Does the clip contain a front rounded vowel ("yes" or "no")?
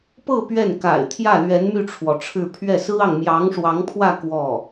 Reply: yes